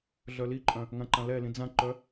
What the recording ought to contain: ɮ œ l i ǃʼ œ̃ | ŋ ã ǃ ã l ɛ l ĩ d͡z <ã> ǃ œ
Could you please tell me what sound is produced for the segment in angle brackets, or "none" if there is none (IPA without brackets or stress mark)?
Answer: ã